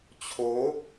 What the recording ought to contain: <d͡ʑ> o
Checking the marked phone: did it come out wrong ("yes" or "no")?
yes